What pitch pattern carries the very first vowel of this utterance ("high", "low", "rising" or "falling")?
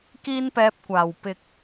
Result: high